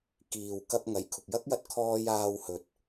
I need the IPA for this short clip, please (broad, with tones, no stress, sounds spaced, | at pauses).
k iː˨ w k ɐ˧ p̚ ŋ ɐ˨˩ j kʰ ʊ˨ k̚ j ɐ˥ k̚ j ɐ˧ t̚ kʰ ɔː˧ j aː˧ w h ɵ˨ t̚